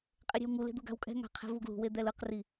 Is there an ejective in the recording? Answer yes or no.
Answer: yes